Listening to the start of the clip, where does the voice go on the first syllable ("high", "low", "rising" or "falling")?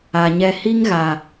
low